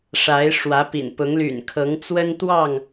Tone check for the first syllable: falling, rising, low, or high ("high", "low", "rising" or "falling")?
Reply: rising